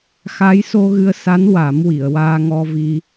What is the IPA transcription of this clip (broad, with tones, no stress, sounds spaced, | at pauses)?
x a˧˥ j s o˧ ɣ ɨ˧ ə̯ s a˧˥ n w a˨˩˦ m w i˨˩˨ ə̯ w aː˧ ŋ ɔ˧ v i˧